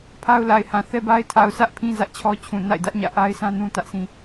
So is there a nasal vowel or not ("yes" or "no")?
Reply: yes